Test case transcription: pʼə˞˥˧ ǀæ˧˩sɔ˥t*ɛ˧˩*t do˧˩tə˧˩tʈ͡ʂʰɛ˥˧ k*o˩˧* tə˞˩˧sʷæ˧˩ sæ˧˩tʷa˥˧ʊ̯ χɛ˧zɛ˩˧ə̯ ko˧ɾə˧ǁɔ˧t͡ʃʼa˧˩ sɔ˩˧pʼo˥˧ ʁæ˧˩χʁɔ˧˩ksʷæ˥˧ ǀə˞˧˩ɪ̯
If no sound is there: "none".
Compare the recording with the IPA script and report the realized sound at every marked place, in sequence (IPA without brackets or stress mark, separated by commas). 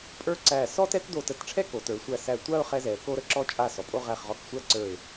ɛ˥, o˩˧